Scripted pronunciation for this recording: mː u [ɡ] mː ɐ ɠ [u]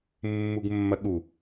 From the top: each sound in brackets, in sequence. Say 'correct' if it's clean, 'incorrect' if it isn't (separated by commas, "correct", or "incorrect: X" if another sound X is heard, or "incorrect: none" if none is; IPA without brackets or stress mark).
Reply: correct, correct